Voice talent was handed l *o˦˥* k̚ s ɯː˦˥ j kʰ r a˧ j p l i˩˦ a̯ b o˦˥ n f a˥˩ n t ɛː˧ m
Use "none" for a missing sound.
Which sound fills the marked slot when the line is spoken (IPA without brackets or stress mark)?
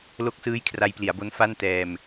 o˦˥